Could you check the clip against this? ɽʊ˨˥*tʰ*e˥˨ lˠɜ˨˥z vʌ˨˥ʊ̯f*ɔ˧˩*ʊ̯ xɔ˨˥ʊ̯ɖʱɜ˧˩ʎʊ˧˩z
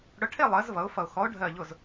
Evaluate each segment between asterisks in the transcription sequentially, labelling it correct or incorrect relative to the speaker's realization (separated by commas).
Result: incorrect, incorrect